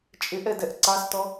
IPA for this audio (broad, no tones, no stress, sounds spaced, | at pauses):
t͡ʃʼ ɪ ʔ ɛ d ɛ ʔ ǀ ɑ s t ɔ